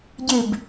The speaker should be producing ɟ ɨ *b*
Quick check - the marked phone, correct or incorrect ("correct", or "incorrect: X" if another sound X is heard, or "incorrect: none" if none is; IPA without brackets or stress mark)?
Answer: correct